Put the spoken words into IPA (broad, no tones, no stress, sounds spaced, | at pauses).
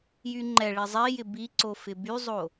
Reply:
j y ŋ͡ǃ ɛ ɭ i zˤ i j ɪ b i ǀ o f ɪ b y zˤ o